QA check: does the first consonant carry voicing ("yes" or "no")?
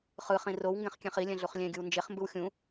no